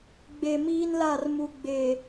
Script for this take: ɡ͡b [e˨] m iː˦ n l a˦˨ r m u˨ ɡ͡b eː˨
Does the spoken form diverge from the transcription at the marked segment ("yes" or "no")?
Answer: no